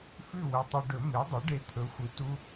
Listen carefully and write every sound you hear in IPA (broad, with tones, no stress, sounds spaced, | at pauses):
f ʉ˥˨ w ɵ˧˩ tˤ ɨ˧ ɖ ɵ˨˩˦ m e˩˥ dˤ u˩˥ ɖ e˧˩ t̪ʰ ɵ˩˥ xʷ ɨ˩˥ t u˧